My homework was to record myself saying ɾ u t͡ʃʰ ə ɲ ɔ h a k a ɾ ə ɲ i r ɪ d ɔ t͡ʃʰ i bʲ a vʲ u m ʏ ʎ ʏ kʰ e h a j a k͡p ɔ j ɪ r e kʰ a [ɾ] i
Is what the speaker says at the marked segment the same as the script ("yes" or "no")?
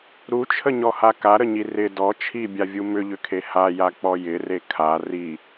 no